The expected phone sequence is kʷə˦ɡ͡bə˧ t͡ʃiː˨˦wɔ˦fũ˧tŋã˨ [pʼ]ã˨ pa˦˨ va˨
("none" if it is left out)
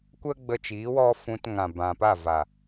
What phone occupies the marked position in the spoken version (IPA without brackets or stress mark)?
b